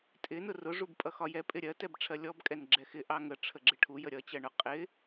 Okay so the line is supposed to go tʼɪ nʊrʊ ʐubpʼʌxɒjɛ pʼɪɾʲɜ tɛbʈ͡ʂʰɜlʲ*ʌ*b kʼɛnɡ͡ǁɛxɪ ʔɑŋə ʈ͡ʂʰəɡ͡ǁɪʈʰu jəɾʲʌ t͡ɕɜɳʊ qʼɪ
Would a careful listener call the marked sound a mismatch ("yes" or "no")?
yes